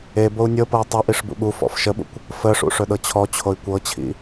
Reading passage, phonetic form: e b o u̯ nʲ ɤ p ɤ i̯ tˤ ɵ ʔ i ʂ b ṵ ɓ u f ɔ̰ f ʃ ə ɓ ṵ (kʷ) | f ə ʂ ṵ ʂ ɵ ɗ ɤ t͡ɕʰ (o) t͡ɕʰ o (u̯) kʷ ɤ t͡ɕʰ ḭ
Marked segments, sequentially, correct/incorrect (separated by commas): correct, incorrect, incorrect